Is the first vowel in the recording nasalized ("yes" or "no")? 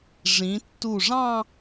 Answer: yes